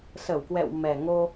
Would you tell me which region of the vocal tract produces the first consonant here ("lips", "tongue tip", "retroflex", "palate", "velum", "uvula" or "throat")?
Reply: tongue tip